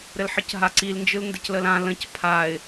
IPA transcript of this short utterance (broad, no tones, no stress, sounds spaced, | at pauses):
ɾ ɘ l ħ ɯ c ɦ a ǀ i l n d͡ʒ ɯ l n d ɘ c l ə l ã l ə̃ c pʰ a ɪ̯